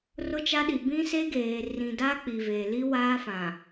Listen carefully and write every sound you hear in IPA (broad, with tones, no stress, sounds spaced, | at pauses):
r ʊ˦ t͡ʃ a˦ ɗ i˨ b ĩ˦ s e˦ ɡ eː˨ r ĩ˨ d a˦ k͡p i˨ v eː˨ l i˦ w aː˦ f ã˨